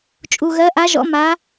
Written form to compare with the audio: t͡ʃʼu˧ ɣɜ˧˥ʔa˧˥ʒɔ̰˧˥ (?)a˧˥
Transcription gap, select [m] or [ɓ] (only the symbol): m